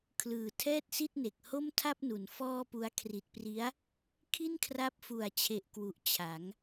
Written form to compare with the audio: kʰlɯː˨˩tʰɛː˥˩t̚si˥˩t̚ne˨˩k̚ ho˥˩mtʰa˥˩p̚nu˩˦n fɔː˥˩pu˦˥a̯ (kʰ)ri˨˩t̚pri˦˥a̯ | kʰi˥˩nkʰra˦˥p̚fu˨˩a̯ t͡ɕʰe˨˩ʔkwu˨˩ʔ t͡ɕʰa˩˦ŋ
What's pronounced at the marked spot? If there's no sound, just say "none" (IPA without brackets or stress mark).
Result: kʰ